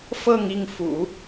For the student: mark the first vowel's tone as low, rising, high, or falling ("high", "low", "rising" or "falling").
falling